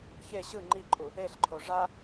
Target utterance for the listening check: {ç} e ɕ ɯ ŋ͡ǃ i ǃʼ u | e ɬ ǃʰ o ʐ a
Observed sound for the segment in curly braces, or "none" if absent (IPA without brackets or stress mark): ç